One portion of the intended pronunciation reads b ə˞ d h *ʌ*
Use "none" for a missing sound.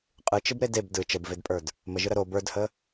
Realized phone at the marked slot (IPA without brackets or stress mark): ə